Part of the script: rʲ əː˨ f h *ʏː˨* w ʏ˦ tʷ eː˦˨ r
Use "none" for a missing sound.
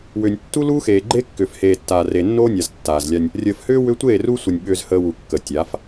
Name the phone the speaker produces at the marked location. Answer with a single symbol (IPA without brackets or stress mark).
ʏː˦